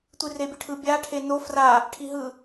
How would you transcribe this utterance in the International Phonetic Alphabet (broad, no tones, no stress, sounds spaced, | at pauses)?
tʷ i r e bʲ ɯ ʈʰ ɯ bʲ a ʈʰ e n o f r a | ʈʰ i ɦ ɯ